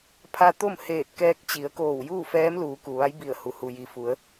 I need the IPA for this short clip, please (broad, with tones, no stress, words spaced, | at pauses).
pʰa˧t̪o˥˨mheː˧˩t̚ kɛː˧k̚t͡ɕi˩˧ə̯koː˧˩w juː˥˨fɛː˧˥mluː˩˧ ku˩ʋa˧˥jbi˧˩ə̯hu˩ hu˩ji˩fu˩˧ə̯